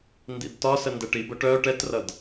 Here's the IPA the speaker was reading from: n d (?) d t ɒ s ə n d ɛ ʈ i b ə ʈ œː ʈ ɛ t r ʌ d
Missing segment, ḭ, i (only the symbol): ḭ